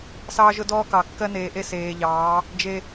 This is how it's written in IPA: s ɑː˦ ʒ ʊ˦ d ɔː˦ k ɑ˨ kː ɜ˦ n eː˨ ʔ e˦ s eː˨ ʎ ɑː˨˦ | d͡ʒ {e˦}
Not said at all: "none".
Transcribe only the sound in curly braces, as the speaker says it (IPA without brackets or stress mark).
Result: e˦